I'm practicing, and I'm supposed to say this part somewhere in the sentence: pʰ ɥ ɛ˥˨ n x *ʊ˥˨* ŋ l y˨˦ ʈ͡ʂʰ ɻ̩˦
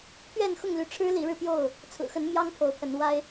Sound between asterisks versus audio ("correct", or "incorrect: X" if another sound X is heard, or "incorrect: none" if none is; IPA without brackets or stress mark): correct